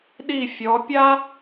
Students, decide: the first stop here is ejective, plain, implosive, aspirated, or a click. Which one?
implosive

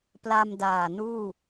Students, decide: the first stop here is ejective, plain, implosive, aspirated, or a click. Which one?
plain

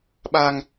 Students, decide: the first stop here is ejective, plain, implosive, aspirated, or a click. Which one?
implosive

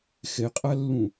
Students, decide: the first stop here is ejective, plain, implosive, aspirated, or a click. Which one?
ejective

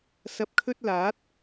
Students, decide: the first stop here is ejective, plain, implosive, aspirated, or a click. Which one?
plain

